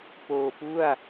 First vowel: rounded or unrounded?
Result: rounded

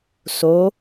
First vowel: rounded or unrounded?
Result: rounded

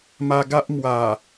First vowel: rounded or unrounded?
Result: unrounded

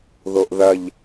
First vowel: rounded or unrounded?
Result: rounded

